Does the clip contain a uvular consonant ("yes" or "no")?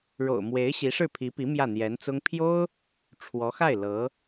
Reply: no